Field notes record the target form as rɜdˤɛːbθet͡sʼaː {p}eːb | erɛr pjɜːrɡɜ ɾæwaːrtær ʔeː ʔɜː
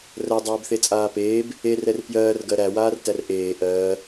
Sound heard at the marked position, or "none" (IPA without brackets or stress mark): p